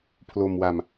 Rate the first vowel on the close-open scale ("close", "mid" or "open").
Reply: mid